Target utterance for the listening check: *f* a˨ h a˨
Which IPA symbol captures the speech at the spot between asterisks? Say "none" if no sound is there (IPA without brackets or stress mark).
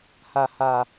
h